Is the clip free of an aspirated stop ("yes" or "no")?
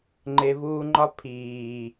no